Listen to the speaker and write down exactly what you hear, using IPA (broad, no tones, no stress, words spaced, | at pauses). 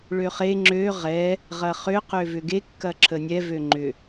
ɭøχe ŋ͡ǁø ʁɛ | ʁɐχʏ qøvʏɡe kːɐǁʰənʲɛ vøŋ͡ǃʏ